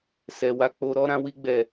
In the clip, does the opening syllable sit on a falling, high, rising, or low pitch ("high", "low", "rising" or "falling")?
low